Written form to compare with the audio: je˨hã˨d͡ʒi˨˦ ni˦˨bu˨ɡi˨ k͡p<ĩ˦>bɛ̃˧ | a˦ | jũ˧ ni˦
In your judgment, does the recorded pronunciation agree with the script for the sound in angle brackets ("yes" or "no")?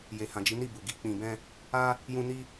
no